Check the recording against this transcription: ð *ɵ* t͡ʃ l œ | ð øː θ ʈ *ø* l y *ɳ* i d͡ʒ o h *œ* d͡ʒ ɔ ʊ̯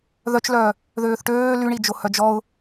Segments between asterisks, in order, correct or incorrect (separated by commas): incorrect, incorrect, correct, correct